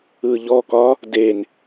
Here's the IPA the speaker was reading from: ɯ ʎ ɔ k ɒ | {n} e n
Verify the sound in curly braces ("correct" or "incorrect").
incorrect